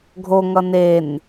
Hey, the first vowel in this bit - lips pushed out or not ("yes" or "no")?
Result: yes